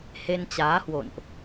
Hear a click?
no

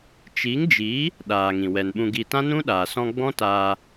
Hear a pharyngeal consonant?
no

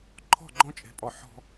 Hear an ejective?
yes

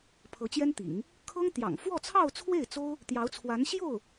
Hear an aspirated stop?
yes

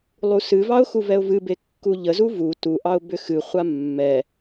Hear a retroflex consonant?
no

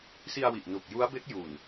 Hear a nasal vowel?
no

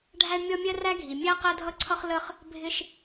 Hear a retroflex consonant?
yes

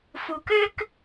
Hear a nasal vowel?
no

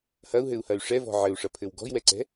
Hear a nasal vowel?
no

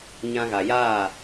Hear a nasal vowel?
yes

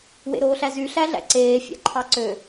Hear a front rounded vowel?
yes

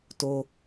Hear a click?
no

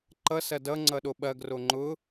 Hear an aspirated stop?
no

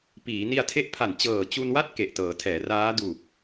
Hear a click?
no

